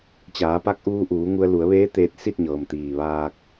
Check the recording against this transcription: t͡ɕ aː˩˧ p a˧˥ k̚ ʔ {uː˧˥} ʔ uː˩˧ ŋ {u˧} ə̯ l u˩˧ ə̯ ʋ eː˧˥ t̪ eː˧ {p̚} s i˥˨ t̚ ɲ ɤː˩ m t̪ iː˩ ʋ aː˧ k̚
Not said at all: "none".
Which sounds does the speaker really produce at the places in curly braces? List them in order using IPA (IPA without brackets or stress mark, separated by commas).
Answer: uː˧, u˧, t̚